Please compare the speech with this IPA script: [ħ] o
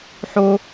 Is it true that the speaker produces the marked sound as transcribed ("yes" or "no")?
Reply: yes